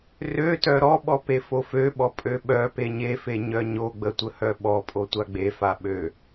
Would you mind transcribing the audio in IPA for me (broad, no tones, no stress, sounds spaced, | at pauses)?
r ø t œ ɾ ɔ ɓ ɔ p e f o f ø ɓ ɔ pʼ ø ɓ œ p e ɲ e f e ɲ œ ɲ o ɡ͡b ə tʷ ə h œ ɓ ɔ pʼ o tʷ a ɡ͡b e f a ɓ ø